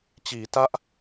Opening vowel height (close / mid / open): close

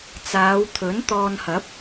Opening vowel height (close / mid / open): open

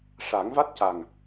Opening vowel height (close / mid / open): open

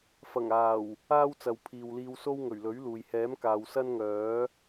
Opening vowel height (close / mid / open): open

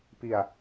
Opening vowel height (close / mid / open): close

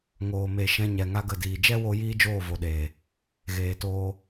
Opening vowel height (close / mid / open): mid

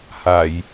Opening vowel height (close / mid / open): open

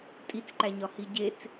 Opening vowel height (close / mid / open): close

